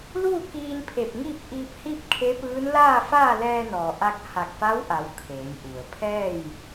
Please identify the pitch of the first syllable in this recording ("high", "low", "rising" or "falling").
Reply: falling